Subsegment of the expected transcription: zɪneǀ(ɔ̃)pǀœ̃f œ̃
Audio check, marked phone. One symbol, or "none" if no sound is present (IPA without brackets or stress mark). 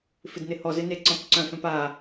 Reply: ɔ̃